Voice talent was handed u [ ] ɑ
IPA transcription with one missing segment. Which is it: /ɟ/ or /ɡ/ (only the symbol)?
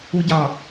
ɟ